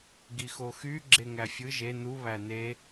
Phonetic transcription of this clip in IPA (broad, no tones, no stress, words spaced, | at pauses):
ɡixoxy ɡ͡ǁeŋæfʲɯ ʒe nu βæne